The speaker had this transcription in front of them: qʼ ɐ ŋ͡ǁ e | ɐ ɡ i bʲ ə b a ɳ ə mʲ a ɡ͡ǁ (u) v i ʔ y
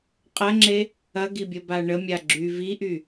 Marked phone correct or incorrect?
incorrect